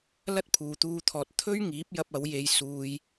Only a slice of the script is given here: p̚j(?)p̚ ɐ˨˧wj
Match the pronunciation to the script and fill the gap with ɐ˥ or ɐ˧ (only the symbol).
ɐ˧